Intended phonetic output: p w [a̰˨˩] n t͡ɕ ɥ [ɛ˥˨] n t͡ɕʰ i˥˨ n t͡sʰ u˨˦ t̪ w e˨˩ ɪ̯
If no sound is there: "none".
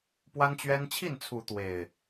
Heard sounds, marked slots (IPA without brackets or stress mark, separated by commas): a˦, ɛ˦